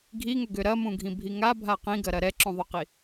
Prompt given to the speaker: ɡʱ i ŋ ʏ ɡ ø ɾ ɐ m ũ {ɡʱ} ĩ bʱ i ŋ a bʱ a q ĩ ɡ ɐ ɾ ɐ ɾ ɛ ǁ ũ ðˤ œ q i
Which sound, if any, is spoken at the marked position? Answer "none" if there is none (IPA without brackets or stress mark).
ɡʱ